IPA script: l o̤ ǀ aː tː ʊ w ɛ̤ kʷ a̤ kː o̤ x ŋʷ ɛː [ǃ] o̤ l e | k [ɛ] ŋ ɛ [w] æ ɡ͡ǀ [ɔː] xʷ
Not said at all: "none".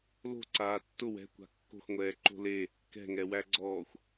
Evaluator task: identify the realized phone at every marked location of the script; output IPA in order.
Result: ǃ, ɛ̤, w, ɔː

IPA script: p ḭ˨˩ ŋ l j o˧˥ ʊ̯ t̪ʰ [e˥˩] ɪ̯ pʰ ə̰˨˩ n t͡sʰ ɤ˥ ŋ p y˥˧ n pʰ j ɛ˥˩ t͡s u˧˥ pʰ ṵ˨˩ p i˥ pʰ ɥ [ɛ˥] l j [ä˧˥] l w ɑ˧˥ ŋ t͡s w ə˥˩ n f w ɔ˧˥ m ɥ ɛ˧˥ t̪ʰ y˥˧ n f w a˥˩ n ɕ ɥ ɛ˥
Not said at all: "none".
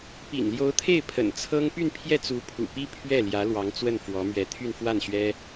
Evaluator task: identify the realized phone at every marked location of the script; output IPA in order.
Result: e˥˩, ɛ˥˩, ä˧˥

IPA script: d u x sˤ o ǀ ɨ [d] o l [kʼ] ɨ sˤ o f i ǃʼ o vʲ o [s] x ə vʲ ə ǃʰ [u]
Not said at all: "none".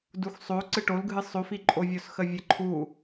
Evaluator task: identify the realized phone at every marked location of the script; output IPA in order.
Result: ʈ, ɡʱ, s, u

